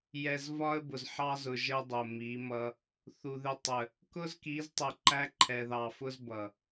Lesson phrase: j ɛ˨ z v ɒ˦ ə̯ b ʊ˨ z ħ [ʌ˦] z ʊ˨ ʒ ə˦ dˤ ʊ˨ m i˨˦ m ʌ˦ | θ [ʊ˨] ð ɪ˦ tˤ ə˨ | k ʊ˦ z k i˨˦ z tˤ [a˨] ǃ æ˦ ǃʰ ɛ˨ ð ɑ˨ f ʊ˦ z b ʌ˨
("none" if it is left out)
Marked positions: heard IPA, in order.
ɑ˦, u˨, ə˨

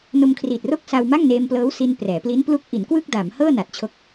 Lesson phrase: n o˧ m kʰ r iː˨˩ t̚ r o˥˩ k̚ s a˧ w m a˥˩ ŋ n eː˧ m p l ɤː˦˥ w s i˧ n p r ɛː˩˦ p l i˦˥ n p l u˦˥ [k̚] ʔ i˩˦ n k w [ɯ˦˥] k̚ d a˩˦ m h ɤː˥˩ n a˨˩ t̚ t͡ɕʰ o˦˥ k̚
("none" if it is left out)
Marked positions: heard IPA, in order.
k̚, ɯ˥˩

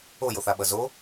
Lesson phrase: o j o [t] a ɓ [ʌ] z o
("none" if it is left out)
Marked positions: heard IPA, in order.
θ, ʌ

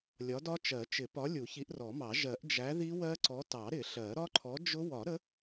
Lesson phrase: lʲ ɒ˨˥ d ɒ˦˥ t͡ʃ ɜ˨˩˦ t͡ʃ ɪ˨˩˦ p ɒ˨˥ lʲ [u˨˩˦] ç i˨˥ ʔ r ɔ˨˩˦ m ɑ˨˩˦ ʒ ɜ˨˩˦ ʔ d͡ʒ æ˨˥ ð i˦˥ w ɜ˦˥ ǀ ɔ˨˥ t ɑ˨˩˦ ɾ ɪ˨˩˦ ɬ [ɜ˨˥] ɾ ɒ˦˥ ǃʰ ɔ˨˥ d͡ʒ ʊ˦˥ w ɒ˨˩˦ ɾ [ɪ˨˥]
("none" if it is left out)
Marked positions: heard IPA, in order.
u˨˩˦, ɜ˨˩˦, ə˨˥

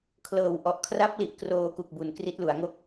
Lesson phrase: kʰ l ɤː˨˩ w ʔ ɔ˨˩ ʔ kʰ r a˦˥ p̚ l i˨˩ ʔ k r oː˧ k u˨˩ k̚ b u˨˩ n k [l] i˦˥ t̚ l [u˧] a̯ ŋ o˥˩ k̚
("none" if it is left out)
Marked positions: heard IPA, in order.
r, u˩˦

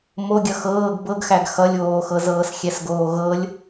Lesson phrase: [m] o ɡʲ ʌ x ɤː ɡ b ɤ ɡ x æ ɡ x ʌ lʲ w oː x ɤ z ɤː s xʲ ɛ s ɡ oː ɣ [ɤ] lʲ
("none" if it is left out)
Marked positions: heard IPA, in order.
m, ɤ

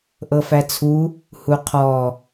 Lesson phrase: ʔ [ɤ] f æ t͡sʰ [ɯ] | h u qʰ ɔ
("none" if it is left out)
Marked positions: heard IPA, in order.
ɤ, u

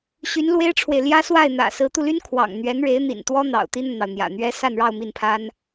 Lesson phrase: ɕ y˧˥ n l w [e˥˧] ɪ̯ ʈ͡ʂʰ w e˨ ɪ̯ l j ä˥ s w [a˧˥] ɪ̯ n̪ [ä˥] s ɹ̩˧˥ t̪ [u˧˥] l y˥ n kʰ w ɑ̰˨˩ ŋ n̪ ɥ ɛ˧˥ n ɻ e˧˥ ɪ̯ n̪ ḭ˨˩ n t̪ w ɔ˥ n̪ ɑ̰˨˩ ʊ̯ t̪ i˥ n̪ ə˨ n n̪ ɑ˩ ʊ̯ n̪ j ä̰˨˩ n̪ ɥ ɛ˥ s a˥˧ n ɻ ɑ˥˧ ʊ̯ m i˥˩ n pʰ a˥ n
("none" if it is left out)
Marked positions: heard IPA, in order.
e˥, a˥˩, ä̰˨˩, u˧

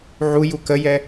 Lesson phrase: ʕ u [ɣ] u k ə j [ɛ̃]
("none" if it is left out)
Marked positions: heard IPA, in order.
j, ɛ

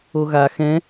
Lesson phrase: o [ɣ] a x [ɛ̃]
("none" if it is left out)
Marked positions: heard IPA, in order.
ɣ, ɛ̃

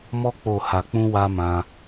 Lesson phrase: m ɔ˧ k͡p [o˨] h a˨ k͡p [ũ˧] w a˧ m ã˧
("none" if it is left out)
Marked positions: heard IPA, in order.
o˨, ũ˧

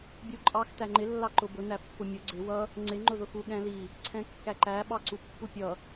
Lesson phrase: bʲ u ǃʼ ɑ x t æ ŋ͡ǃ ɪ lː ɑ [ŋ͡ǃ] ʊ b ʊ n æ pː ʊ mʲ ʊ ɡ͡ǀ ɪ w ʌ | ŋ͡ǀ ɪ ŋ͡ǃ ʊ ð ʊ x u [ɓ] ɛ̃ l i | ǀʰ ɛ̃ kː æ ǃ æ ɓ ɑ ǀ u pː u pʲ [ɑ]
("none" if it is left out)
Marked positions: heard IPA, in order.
ǃ, ɠ, ʌ

